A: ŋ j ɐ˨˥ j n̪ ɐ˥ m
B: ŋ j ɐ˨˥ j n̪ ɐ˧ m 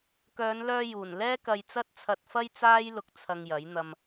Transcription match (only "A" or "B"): B